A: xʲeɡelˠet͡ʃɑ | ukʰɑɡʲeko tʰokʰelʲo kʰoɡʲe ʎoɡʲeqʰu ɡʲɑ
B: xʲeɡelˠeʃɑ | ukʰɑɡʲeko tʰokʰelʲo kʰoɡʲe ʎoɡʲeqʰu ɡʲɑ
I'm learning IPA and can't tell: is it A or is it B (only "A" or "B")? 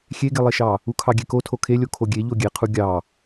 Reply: B